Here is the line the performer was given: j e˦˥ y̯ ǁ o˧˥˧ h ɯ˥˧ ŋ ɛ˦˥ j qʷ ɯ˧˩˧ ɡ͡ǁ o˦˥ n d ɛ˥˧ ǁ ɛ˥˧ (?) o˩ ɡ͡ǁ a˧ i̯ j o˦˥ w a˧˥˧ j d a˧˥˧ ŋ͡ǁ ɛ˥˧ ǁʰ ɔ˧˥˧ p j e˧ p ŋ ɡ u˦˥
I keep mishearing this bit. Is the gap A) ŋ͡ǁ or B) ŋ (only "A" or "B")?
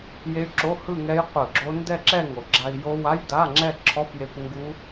B